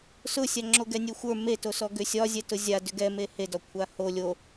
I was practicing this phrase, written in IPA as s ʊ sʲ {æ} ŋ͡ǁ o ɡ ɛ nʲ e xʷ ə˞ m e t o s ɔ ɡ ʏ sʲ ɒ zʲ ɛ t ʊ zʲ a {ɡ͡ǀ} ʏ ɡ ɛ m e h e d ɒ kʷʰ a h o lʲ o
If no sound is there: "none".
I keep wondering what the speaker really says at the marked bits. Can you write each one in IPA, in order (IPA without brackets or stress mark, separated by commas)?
a, d